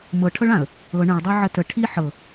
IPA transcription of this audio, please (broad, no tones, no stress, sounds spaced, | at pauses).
m ɤ ʈʰ ɤ ɭ ã ə̯ | ɤ ɳ ə̃ ɭ dˤ ɤ ʕ ə t ə ʈʰ i ħ ɤ